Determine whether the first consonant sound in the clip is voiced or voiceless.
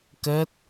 voiceless